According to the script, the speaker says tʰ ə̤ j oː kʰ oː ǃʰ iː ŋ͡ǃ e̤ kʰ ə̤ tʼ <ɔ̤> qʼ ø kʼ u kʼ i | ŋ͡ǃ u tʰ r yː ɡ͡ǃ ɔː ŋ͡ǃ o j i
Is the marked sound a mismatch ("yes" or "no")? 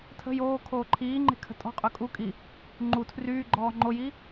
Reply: no